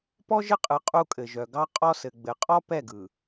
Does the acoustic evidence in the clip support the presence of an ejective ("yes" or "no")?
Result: yes